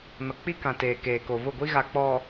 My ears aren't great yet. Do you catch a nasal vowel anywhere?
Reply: yes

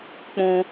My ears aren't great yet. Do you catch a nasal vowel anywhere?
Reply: yes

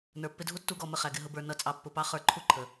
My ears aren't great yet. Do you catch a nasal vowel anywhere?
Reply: no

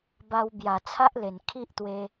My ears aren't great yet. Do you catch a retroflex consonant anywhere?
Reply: no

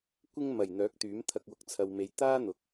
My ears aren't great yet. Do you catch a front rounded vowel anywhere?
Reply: yes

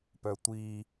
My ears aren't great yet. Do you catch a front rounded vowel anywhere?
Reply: yes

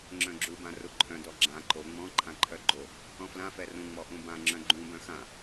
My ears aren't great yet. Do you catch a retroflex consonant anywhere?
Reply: no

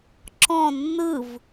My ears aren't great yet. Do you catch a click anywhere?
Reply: yes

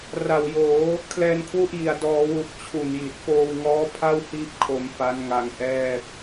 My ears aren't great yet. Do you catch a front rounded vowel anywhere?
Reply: no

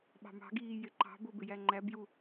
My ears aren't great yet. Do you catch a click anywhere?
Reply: yes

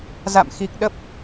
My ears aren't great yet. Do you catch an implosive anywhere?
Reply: yes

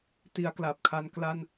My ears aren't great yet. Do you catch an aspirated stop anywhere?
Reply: yes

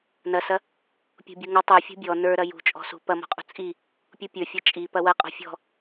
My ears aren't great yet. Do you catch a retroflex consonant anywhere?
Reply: no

